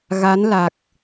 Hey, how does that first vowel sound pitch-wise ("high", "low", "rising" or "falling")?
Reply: rising